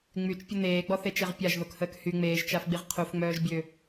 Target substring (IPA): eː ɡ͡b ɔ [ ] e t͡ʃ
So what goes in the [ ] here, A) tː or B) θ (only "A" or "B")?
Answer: B